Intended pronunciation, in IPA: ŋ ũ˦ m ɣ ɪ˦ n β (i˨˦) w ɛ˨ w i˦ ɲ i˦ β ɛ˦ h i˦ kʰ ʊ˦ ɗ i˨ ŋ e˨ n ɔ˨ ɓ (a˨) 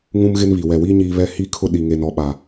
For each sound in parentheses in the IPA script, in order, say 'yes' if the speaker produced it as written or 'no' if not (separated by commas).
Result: no, yes